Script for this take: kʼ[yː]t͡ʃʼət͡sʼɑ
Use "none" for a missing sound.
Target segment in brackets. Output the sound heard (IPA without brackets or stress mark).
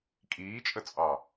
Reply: iː